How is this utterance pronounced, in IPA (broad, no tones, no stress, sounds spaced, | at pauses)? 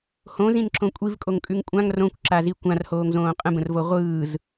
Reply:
h õ z ĩ n ǁ õ kʷʼ i v kʼ o ŋ kʼ ʉ ŋ kʷʼ ã ŋ r õ kʷ ǁ a z i kʷ ã r h oː ŋ z õː qʼ ə̃ b ə̃ r v o ʁʷ ɯː z